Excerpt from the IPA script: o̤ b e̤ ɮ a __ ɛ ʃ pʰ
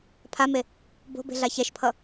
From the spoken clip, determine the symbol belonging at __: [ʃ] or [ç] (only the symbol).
ç